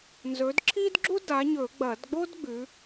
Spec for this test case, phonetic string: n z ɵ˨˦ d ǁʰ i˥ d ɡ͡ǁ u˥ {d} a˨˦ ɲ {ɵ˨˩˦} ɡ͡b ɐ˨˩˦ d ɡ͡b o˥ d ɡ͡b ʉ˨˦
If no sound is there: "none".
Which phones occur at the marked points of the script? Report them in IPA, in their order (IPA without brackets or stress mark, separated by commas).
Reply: d, ɵ˨˩˦